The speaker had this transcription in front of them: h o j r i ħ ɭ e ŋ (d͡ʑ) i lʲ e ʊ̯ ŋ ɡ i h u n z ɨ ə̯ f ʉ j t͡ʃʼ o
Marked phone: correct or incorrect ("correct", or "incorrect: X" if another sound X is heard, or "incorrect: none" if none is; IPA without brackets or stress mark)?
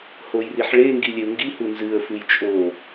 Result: incorrect: ɡ